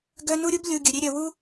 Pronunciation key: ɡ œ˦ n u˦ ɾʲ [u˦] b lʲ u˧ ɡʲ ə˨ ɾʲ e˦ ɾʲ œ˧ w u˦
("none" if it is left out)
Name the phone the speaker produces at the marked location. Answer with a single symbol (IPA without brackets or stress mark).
u˦